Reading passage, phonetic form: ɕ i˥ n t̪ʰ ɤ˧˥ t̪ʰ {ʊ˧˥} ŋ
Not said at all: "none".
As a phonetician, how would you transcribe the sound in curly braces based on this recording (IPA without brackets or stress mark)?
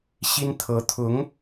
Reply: ʊ˧˥